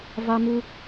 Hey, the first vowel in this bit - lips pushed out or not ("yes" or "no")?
no